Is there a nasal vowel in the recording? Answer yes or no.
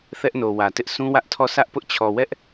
yes